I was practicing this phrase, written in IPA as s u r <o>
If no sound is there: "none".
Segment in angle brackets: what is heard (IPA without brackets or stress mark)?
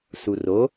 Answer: o